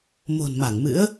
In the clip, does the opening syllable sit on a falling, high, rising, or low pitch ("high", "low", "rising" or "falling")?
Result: low